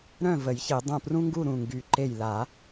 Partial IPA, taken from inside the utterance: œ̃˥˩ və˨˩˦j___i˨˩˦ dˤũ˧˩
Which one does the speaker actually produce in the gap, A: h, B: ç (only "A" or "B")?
B